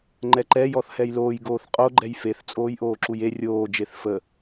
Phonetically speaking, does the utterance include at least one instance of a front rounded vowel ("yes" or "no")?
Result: no